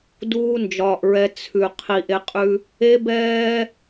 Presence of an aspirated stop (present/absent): present